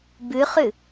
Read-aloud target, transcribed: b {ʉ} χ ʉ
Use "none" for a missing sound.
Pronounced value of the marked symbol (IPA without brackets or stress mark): ʉ